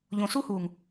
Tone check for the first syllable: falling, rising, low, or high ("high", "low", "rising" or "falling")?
low